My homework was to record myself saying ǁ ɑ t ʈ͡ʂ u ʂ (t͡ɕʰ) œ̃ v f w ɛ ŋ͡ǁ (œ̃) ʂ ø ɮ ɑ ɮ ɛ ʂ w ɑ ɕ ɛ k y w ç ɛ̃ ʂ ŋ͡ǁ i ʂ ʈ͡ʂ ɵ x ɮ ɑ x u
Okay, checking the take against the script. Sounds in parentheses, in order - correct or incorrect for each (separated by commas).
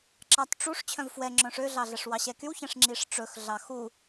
correct, correct